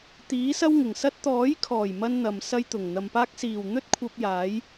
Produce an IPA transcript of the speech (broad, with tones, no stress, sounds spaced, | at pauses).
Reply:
t̪ iː˨˥ s ɐ˥ w ŋ ɪ˨˩ ŋ s ɐ˥ t̚ t̪ ɔː˨˥ j kʰ ɔː˨˩ j m ɐ˧ n n̪ ɐ˨ m s ɐ˥ j t̪ ʊ˨˩ ŋ n̪ ɐ˨ m p aː˥ k̚ s iː˨˩ w n̪ ɵ˥ t̚ kʷʰ ɐ˧ p̚ j aː˨˥ j